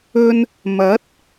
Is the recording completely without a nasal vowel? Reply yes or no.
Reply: yes